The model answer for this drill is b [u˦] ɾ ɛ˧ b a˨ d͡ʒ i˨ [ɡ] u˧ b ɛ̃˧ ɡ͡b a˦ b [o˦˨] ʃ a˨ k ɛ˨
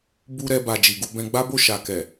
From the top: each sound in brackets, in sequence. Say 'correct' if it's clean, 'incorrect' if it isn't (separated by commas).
incorrect, correct, correct